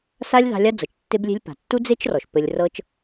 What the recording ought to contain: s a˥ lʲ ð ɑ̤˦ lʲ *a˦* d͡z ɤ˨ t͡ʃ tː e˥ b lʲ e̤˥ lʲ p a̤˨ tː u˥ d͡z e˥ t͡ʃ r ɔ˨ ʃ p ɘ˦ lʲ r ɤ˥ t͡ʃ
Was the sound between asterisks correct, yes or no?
no